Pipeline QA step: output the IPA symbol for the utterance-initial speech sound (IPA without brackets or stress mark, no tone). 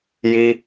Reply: j